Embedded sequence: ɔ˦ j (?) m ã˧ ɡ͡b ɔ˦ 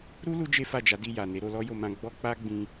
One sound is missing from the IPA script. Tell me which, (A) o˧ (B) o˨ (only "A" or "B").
A